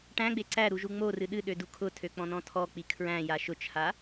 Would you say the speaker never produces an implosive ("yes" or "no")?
no